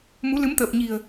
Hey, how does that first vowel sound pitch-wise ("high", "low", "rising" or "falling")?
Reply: rising